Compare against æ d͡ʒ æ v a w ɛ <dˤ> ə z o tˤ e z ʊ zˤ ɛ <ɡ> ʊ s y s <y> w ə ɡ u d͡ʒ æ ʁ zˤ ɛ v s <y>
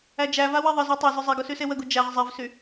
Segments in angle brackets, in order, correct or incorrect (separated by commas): incorrect, correct, incorrect, correct